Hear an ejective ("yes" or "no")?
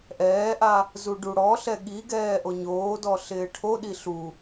no